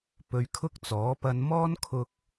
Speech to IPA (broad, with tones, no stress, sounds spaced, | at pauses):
p ɵ˨˧ ɥ kʰ ʊ˥ k̚ t͡s ɔː˨˥ p ɐ˧ n m ɔː˥ n kʰ ʊ˧ k̚